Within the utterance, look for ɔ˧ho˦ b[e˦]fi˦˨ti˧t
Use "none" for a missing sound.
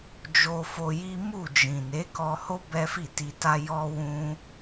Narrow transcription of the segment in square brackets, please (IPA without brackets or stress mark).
ɛ˦